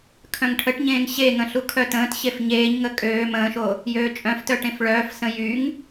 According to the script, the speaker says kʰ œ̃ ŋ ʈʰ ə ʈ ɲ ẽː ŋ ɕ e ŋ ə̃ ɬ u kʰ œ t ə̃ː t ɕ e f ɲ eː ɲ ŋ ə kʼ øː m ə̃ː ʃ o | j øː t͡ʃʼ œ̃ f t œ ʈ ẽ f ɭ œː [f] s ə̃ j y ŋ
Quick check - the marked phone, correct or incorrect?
correct